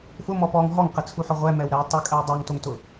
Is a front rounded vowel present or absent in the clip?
absent